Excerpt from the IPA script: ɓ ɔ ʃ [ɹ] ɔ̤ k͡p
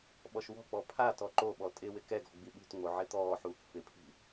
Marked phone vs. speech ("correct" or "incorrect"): incorrect